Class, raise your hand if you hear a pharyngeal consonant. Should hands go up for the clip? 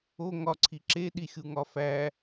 no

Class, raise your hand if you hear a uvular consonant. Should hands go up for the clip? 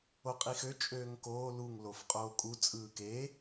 yes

